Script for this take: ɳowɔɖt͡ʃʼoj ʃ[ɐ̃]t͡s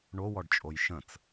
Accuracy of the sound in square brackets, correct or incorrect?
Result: incorrect